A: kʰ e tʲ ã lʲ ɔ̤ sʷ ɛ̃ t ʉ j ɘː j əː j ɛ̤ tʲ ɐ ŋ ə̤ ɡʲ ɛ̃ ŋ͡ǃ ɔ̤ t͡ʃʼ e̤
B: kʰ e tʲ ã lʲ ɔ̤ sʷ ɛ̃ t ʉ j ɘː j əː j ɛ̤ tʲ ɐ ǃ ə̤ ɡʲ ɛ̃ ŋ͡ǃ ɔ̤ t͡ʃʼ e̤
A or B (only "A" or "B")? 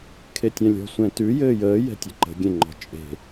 B